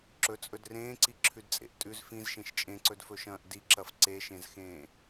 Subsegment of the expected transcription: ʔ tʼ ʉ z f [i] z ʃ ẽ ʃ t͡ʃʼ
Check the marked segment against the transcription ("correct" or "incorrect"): incorrect